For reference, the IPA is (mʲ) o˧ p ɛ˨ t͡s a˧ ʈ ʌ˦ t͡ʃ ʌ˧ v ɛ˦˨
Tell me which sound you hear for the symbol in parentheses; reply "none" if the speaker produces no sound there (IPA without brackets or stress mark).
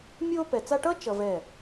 mʲ